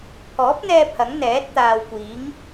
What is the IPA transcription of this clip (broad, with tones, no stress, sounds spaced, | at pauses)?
pʰ ɔː˨˥ p̚ n̪ ɛː˧ pʰ ɐ˨˥ ŋ n̪ ɛː˨˥ t̚ t̪ aː˨ w kʷ iː˨˥ ŋ